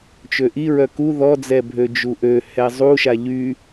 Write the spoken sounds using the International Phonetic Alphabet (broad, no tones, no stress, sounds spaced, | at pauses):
t͡ʃ ø ʔ i ɹ œ k u ð ɔ d͡z ɛ bʱ ø d͡ʒ u ʔ ø h ɛ zˤ u ʃ a ʎ y